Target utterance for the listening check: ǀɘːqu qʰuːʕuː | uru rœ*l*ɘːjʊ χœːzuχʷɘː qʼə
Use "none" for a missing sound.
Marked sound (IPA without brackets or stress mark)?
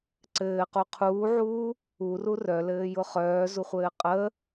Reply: l